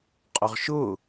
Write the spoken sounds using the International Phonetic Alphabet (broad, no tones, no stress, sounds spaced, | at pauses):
qʼ ʊ ʁ ʃ ʊ